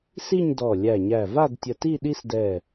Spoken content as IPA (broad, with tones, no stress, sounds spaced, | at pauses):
s i˥˧ ɲ d ɔ˧˩ lʲ æ˧˩ ɲ æ˧˩ v a˥˧ d tʲ ə˧ t i˥˧ ɗ i˥ s d ɛ˧˩